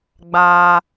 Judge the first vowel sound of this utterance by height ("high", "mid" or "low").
low